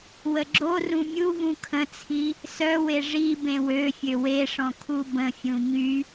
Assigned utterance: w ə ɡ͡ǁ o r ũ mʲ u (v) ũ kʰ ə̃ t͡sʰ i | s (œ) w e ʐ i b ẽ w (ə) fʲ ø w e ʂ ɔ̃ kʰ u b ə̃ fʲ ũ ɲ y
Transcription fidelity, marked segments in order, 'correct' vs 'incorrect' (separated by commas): correct, correct, incorrect